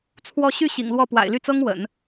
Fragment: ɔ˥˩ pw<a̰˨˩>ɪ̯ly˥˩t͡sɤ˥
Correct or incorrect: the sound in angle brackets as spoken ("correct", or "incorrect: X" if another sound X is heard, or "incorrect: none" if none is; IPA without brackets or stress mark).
correct